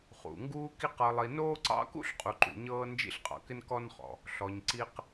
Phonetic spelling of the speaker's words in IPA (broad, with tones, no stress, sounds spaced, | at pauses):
χ ṵ˩ ŋ ɡ uː˥ k i˥ q ɤ˨ lˠ i˨ n oː˥ ǀ ɑ̰˥ k ṵ˥ ɬ qʼ u˨ ǃ ṵ˨ ɲ ɤː˦ n d͡ʒ ḭ˦ ɬ qʼ ɑ̰˨ k ɪ˥ n k ɔ˥ n χ ɔ̰˨ | ɬ ɔ˨ ɲ ǀ i˦ q